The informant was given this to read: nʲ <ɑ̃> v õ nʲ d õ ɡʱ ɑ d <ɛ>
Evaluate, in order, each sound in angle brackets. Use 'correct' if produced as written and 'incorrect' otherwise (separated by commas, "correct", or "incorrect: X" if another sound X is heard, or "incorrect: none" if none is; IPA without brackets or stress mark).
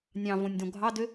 correct, incorrect: ø